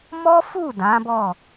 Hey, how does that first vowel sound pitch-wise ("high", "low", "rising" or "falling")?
high